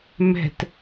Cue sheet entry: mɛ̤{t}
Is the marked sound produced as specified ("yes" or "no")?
yes